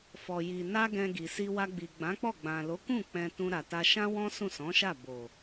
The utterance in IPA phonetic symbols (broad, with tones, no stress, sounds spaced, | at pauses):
f ɔ˨ j i˨ n a˧ ɡ ɛ̃˧ ɡ i˨ s i˧ w a˧ ɡ͡b i˨ ɡ͡b ã˨˦ k͡p ɔ˦˨ ɡ͡b ã˨ l o˨˦ k ũ˦˨ k͡p ɛ̃˧ t ũ˧ ɾ a˨ t a˧ ʃ ã˦ w ɔ̃˦ s ũ˦˨ s ɔ̃˨˦ ʃ a˦˨ b o˨